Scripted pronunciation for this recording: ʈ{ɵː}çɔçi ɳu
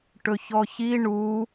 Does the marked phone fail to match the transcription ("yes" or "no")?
yes